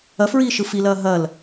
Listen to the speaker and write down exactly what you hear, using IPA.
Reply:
ɐ f ɹ iː ʃ ɯ f i l ɐː ɦ ɐ l

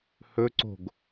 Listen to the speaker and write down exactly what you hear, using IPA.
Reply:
h ɵ ǀ o̤ ɡ

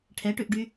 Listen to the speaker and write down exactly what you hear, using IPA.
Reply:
ʈʰ ɛ ʈ ʉ ʔ ɖ y

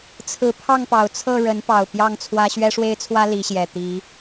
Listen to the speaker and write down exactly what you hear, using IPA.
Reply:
t͡sʰ ɹ̩˨˦ pʰ ɑ˥˨ ŋ p ɑ˨˩ ʊ̯ t͡sʰ ɤ˥˨ ɻ ə˨˦ n p ɑ˨˩ ʊ̯ p j ɑ˥˨ ŋ t͡sʰ w ä˦ ɕ ɥ ɛ˦ ʂ w e˦ ɪ̯ t͡sʰ w ä˦ l i˨˦ ɕ j ɛ˨˩ t̪ i˨˦

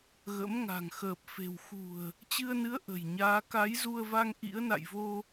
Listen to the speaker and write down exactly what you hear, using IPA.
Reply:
ɣ ə̰˧˥ m ŋ a̤˨˩ ŋ x əː˨˩ p̚ f e̤˨˩ w x ṳ˨˩ ə̯ | t͡ɕ ɨ˧ ə̯ n ɨ˨˦ ə̯ ʔ ə̤˨˩ j ɲ aː˨˦ k a˨˦ j z u˧ ə̯ v a˧ ŋ ʔ ḭ˧˥ ə̯ n a̰˧˨ j v o˧

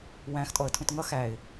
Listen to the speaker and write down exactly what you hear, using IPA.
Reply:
w æ̃ x tʼ ɔ ə̯ tʰ ũ t ŋ ʌ x æ ɪ̯

